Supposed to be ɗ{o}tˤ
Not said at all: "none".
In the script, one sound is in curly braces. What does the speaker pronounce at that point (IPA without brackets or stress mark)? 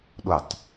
o